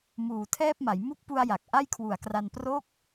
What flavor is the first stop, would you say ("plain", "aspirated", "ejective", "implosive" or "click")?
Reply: aspirated